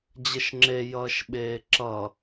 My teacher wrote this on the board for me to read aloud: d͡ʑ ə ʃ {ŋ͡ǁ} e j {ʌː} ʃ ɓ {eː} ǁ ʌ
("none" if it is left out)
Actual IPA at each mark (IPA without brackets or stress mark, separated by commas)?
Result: ŋ͡ǁ, ʌː, eː